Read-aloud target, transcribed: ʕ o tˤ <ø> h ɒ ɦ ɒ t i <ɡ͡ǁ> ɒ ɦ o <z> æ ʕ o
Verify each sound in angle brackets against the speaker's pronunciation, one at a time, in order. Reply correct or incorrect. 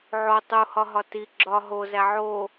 incorrect: u, correct, correct

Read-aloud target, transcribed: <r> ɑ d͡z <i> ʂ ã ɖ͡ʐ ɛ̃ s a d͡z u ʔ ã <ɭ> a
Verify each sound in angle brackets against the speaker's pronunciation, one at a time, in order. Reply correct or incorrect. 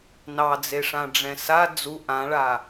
incorrect: n, incorrect: e, correct

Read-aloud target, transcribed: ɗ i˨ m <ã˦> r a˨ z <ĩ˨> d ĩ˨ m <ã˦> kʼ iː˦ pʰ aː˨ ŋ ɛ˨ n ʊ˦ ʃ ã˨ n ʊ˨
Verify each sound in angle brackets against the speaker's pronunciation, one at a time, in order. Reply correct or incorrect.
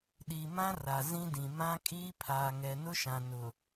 correct, incorrect: ĩ˦, correct

